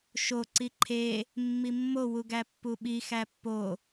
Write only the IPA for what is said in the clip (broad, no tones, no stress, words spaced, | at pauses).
ʃo ǀiǃʰe | mːimːo wuɡæpːuɓi xæpːo